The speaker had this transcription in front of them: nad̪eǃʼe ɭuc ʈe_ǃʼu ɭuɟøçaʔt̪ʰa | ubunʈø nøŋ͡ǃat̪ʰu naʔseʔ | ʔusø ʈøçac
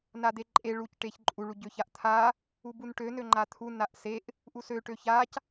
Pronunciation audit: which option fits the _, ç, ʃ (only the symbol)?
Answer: ç